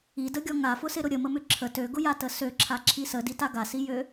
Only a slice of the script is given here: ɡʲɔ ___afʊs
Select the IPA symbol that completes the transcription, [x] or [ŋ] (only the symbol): ŋ